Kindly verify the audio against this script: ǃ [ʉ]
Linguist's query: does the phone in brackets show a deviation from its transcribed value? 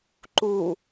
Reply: yes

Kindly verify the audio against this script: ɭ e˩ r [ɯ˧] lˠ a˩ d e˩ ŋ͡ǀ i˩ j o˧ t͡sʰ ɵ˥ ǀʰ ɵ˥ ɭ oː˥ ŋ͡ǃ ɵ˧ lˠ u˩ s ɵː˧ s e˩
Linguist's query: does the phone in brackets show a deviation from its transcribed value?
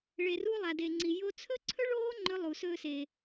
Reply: yes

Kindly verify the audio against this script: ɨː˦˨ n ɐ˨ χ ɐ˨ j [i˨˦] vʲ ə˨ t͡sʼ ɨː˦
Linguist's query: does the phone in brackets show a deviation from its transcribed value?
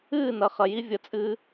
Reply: yes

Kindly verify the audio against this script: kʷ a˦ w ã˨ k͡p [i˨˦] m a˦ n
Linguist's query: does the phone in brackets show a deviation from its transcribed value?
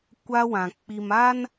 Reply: yes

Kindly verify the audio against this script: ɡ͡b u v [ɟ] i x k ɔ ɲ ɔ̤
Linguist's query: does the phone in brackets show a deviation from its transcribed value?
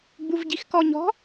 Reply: no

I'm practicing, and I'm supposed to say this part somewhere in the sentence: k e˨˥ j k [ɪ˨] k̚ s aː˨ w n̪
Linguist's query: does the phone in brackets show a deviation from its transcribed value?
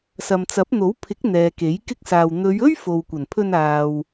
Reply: yes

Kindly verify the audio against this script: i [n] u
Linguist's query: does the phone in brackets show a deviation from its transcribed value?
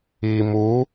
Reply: yes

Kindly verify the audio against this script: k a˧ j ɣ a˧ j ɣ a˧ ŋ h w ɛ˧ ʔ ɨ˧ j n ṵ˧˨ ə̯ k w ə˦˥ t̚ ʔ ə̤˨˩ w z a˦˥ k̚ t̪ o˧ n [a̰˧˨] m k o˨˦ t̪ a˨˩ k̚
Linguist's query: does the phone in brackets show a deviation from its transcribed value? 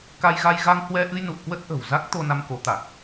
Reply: yes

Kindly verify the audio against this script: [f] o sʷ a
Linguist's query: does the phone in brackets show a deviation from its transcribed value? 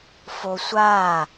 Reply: no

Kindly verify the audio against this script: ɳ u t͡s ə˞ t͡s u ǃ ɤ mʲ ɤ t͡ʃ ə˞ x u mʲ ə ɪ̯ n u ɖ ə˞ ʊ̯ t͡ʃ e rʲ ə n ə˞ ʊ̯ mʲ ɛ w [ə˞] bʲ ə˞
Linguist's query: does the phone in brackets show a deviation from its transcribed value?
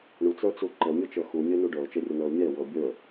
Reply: yes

